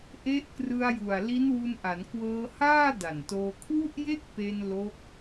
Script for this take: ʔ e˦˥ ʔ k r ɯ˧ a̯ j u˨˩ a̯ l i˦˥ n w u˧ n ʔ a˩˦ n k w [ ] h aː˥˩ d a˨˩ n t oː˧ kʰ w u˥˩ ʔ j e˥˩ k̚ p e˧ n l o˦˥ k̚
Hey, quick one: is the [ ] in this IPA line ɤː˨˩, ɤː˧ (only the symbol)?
ɤː˧